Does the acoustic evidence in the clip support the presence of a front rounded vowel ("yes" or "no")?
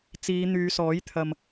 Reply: yes